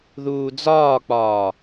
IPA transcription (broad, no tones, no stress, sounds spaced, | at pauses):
ð uː d͡z ɒː k͡p ɒː